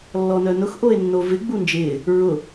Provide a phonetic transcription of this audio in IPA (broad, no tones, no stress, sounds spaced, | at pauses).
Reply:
lː ɔ n œ n ʊ x ʔ o e̯ nː o v ɪ ɡ͡b u n d͡ʒ ɪː | ɹ ʊ